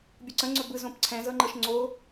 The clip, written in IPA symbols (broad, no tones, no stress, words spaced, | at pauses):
bʲuǀə̃ ŋ͡ǀɵbɯ zõpǀʰɛ̃zɤŋ͡ǃɤʃ ŋ͡ǀo